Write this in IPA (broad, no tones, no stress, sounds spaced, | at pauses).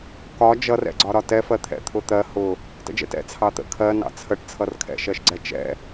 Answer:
k ɒ d͡ʒ ʌ r ɛ̰ ɡ͡ǀ ɒ ɾ ɒ t ɛ f ɜ t̪ʰ ɛ̰ t̪ʰ ʊ t̪ ɜ h ʊ | t ə̰ d͡ʒ ɛ̰ t ɛ̰ t͡sʰ ɑ t̪ ə̰ kʰ ɜ n ɑ̰ t͡sʰ ə ʈ t͡sʰ ʌ r kʰ ɛ̰ ʃ ɜ ʃ ɡ͡ǀ ɛ t͡ʃ ɛ̰